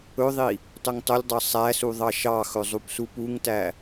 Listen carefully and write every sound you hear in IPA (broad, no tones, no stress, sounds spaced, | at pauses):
ɵ ðˤ i | tˤ ɵ ŋ tˤ ɵ lʲ dˤ ɑ sˤ æ s u ðˤ ɑ ʃ ɑ x ɵ zˤ u p s u p u ŋ t æ